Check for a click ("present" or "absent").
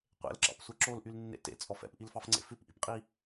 present